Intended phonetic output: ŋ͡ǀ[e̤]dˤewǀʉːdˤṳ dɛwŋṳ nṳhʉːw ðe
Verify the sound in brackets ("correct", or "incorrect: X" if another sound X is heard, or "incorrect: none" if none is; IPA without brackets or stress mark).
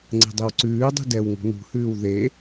correct